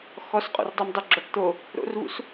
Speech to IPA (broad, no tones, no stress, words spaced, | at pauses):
xɔsqʼo̰rdˤimdˤo ɡ͡ǁɔʈt̪o | ɾo̰rvṵs